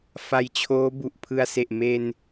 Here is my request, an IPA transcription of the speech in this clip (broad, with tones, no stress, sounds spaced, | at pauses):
f a˧ j t͡ɕʰ oː˦˥ b u˨˩ ʔ pʰ ɯ˧ a̯ s e˨˩ ʔ m e˧ n